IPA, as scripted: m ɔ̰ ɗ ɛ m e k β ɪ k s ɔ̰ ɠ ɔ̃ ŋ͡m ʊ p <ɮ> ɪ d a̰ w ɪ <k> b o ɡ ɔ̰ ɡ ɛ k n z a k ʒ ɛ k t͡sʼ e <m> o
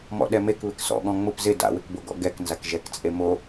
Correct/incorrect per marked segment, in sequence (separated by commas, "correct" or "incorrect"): incorrect, correct, correct